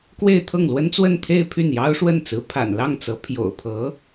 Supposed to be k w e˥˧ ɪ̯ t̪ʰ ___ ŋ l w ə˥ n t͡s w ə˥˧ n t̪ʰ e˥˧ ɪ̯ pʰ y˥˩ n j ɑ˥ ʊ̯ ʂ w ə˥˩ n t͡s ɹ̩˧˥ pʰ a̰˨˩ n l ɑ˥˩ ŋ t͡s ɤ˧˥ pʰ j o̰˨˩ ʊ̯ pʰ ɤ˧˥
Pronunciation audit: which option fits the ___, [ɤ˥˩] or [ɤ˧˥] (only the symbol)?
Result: ɤ˥˩